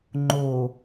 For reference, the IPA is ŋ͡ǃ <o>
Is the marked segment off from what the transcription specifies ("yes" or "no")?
no